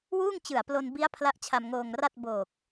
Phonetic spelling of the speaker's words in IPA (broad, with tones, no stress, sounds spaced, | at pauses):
w uː˥˩ ŋ t͡ɕ ɯ˨˩ a̯ p l o˧ n b i˦˥ a̯ pʰ l a˦˥ ʔ t͡ɕʰ a˧ m ŋ oː˧ ŋ r a˥˩ t̚ b oː˨˩ k̚